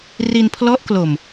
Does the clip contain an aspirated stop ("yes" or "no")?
yes